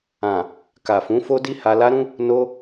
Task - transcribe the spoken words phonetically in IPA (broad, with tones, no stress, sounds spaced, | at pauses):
ã˨ | k a˨ f ũ˨˦ f o˦ d i˦ h a˧ l a˦ ɾ ũ˦ | n o˧